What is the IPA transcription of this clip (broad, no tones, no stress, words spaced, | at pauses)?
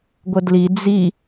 ɡʷədli d͡zi